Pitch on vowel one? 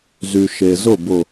low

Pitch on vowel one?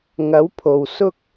rising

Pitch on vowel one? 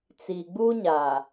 low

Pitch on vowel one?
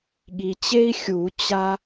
low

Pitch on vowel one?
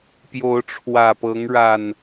rising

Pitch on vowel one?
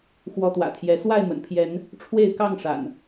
rising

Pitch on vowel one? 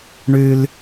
high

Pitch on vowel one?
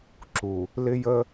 low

